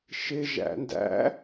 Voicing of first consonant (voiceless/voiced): voiceless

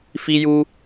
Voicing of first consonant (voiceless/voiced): voiceless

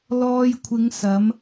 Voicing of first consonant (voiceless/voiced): voiced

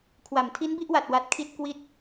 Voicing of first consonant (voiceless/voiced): voiceless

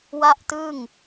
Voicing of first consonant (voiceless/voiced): voiced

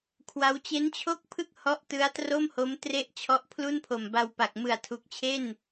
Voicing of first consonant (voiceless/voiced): voiceless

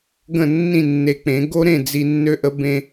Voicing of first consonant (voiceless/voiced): voiced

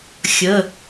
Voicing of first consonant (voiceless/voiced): voiceless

